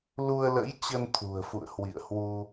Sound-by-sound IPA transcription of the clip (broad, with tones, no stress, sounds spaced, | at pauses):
l u˧ ə̯ l ə̰˧˥ j t͡ɕ ə˧ n t̪ʰ ṳ˨˩ ə̯ f ṵ˧˨ ə̯ h w ḭ˧˨ ə̯ h w u˧